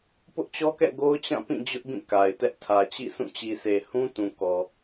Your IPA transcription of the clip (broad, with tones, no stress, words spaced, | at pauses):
pʊ˦ʔt͡ɕɔ˦kɛ̰˦˨ ɡo˦ʊ̯ t͡ɕã˦˨pĩ˦˨ d͡ʑʊ˦ʔbĩ˦˨ ka˨ɪ̯tɛ˦ʔ tʰä˨t͡ɕḭ˦˨sũ˦˨ t͡ɕi˨se˨hũ˦tũ˨ kɔ˨